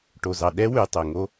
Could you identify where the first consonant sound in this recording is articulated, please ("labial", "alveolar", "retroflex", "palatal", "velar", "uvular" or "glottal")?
retroflex